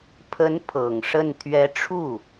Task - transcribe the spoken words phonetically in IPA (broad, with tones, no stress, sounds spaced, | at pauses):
pʰ ə˧˥ n pʰ ɤ˨˩ ŋ ʂ ə˥˩ n t̪ʰ ɥ ɛ˧˥ ʈ͡ʂʰ u˥˩